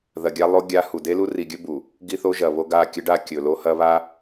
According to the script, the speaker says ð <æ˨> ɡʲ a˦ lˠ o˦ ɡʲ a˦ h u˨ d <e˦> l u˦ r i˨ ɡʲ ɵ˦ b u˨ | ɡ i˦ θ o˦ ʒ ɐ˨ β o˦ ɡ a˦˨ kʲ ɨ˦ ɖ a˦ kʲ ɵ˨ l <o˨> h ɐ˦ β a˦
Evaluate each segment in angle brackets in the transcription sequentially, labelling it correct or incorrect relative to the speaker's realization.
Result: incorrect, correct, incorrect

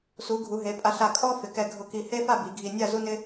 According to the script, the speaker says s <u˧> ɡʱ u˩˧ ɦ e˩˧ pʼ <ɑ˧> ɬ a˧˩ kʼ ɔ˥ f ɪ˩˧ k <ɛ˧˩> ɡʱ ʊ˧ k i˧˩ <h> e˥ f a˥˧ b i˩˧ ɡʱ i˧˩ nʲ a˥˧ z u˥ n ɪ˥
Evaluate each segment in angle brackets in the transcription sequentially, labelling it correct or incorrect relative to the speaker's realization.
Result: incorrect, incorrect, correct, correct

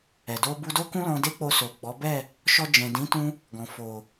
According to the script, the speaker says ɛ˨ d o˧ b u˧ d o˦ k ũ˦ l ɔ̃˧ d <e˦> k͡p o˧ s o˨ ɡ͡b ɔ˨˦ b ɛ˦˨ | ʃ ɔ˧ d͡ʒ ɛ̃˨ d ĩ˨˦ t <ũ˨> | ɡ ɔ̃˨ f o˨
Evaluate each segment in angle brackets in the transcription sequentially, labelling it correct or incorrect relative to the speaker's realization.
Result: correct, incorrect

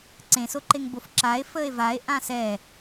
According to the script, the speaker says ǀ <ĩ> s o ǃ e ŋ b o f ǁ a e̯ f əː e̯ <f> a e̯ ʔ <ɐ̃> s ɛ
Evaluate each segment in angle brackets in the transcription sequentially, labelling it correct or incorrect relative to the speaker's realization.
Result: incorrect, incorrect, incorrect

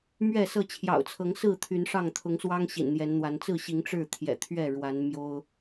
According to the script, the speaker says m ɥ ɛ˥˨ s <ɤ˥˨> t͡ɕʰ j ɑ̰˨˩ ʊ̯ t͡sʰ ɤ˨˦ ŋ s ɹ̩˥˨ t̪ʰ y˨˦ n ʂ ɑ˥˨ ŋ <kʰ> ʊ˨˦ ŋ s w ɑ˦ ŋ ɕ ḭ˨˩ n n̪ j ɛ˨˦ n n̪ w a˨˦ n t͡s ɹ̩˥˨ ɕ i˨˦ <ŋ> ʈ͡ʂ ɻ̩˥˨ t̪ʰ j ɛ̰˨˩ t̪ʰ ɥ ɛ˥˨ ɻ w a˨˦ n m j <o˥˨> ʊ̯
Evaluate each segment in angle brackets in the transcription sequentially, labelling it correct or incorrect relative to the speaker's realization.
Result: correct, incorrect, correct, incorrect

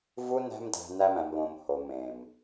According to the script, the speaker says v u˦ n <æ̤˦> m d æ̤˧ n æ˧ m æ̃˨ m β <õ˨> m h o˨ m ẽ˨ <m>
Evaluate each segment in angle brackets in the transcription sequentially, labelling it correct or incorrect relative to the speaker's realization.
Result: correct, correct, correct

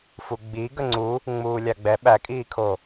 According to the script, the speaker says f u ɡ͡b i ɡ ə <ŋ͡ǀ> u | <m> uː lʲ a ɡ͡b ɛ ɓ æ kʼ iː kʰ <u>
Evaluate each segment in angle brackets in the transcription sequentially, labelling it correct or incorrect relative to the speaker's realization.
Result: correct, incorrect, incorrect

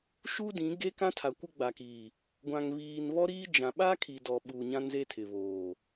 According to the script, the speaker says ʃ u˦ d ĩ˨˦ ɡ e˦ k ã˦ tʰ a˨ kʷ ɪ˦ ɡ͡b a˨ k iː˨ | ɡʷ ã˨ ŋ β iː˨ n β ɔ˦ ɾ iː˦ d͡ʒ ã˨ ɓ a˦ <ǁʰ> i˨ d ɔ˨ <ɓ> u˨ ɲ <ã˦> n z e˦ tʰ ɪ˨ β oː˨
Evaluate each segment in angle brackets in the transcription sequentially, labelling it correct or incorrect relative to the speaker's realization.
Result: incorrect, correct, correct

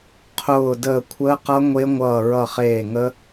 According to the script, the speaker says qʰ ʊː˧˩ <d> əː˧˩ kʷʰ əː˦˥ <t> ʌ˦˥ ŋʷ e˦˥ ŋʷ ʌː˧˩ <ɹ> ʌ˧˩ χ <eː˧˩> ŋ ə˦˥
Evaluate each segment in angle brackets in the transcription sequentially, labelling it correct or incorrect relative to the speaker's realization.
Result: correct, incorrect, correct, correct

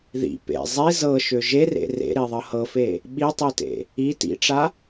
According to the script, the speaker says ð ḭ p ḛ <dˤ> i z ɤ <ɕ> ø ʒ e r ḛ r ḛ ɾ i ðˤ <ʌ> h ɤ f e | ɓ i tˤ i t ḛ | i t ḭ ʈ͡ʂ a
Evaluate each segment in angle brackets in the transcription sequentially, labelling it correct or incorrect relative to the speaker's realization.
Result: incorrect, incorrect, correct

